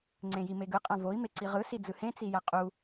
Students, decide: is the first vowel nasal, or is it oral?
nasal